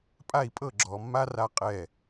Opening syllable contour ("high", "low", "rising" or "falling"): falling